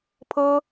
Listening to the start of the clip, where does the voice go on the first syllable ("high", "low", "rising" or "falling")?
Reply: high